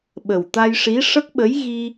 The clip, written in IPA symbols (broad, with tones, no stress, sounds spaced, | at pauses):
ɓ ə˨˩ w t̪ a˧ j ʂ i˧˥ ʂ ə˦˥ k̚ ɓ ə˧˥ j ɣ i˧